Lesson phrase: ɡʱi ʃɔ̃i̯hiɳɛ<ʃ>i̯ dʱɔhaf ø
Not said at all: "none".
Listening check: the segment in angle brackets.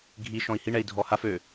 none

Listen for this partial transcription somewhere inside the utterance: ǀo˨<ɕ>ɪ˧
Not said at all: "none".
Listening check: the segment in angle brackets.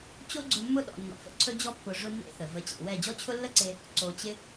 t͡ɕ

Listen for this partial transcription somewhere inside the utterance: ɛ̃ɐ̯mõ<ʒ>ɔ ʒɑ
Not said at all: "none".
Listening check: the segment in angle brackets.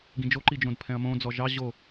d͡z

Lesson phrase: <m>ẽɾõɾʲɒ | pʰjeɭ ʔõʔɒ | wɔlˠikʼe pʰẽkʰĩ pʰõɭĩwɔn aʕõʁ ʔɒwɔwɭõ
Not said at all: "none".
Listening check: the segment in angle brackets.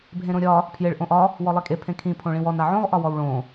bʱ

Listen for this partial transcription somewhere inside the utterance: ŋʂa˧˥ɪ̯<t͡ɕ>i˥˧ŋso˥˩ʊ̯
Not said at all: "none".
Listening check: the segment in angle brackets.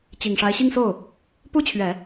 ɕ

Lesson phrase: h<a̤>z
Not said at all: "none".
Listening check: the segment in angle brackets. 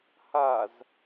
a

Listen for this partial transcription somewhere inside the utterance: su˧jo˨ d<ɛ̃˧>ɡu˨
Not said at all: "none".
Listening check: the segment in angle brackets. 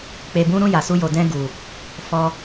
ɛ̃˧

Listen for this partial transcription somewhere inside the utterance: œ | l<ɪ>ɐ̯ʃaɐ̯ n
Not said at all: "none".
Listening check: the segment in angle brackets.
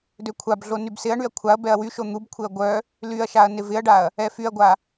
y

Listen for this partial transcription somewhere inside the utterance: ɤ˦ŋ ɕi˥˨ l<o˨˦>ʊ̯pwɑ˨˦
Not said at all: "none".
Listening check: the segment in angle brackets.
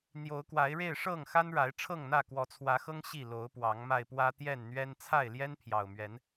o˨˦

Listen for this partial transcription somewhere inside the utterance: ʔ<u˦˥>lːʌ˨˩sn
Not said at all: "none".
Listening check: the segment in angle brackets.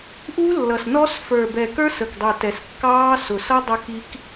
u˦˥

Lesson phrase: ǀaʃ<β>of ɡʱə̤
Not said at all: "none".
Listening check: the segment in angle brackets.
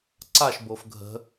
b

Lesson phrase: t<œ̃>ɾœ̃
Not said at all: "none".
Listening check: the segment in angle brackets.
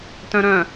œ̃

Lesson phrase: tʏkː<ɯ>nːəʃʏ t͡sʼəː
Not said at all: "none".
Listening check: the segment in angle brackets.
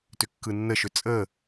ɯ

